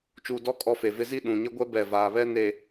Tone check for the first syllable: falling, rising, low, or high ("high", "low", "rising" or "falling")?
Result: low